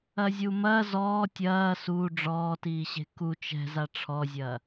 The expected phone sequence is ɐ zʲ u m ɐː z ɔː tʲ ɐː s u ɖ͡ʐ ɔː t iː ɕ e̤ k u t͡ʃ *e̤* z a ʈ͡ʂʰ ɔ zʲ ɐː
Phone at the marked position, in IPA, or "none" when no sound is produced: ɛ̤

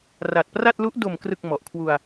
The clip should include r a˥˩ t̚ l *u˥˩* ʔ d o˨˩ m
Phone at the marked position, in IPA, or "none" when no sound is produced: u˦˥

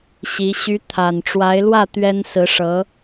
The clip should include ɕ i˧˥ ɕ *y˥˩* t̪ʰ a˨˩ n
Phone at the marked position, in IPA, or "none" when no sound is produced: y˧˥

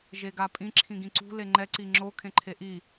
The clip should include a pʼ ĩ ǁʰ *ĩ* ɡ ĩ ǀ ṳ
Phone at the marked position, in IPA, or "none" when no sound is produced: ĩ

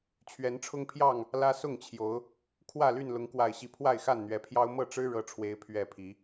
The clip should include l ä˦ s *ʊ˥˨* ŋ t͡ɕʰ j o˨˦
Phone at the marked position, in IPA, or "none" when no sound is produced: ʊ˥˨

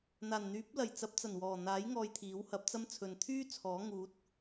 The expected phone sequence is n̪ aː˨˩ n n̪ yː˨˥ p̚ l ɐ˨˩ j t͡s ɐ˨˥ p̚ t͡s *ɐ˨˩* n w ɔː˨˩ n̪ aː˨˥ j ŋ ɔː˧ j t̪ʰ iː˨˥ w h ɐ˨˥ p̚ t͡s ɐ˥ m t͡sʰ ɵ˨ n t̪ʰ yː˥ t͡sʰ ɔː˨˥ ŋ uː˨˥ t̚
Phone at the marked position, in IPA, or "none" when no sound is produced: ɐ˨˩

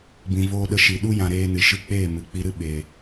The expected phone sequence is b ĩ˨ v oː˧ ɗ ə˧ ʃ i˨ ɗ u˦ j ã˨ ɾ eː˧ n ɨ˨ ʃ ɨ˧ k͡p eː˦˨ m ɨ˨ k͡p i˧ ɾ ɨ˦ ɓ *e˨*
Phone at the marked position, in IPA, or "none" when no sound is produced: e˨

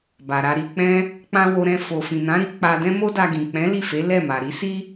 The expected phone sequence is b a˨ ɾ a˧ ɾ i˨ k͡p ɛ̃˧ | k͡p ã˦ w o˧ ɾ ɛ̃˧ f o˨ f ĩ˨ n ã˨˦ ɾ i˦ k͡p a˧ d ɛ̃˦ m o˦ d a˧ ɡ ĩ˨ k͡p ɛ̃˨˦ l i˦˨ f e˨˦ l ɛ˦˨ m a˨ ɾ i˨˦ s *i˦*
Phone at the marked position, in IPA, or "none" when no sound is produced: i˦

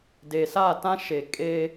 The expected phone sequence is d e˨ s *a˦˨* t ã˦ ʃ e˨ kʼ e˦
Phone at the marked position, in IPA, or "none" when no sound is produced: a˦˨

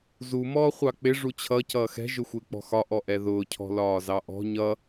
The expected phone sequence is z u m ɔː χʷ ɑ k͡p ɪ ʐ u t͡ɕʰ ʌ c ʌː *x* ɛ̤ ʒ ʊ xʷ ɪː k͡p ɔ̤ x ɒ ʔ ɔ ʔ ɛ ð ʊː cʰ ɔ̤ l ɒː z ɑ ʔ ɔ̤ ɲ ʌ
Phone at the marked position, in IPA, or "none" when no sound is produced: x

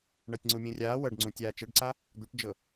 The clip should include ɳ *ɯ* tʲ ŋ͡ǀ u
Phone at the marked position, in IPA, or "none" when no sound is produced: ɤ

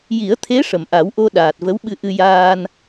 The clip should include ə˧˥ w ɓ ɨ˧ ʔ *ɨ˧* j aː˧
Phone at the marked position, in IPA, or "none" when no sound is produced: ɨ˧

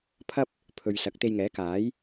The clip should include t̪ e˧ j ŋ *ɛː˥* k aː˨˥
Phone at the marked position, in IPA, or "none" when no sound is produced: ɛː˨˥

